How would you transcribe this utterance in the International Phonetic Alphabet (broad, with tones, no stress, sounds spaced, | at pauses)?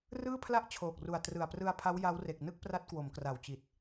r ɯː˥˩ pʰ l a˥˩ ʔ t͡ɕʰ oː˨˩ k̚ r u˨˩ a̯ t r ɯ˨˩ a̯ p r ɯ˧ a̯ pʰ a˦˥ w j a˦˥ w r e˨˩ k̚ n ɯ˥˩ k̚ p r a˦˥ t̚ k w o˩˦ m k r a˨˩ w t͡ɕ i˨˩ t̚